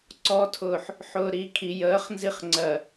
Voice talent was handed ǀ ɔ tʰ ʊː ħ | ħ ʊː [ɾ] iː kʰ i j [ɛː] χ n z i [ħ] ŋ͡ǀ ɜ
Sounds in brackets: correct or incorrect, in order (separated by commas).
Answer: correct, incorrect, incorrect